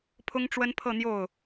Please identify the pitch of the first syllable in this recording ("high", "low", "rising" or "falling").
high